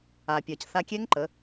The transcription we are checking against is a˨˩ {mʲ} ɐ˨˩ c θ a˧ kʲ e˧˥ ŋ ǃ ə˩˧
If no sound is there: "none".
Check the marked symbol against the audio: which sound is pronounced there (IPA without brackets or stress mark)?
pʲ